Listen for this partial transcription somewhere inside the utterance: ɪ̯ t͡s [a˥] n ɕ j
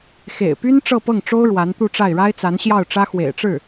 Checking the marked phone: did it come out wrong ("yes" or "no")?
yes